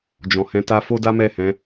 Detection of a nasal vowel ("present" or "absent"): present